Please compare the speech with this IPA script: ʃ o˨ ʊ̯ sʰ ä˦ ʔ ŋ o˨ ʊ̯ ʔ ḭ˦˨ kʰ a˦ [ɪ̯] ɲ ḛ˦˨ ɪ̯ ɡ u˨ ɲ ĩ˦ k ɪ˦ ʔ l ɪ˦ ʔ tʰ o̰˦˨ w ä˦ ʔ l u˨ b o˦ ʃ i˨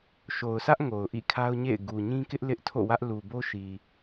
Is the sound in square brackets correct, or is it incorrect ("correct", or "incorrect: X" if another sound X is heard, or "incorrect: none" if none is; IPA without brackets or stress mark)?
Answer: incorrect: ʊ̯